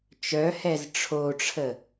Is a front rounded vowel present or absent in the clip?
present